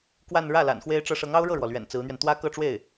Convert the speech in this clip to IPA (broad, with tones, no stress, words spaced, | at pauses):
kwa˥˧n ɻä˥˩ la̰˨˩nxwe˥ɪ̯ʈ͡ʂɤ˥ ʂɤ˧˥ŋɑ˥ʊ̯ɻɤ˥˩ɻwɔ˩ lɥɛ̰˨˩nt͡sɹ̩˧˥n̪ɥɛ˧n t̪wä˥kɤ˥˧ʈ͡ʂwe˥˩ɪ̯